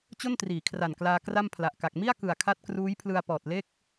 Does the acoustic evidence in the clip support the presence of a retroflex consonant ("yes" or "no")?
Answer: no